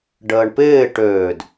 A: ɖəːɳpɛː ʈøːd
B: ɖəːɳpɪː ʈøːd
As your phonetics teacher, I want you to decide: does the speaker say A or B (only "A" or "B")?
B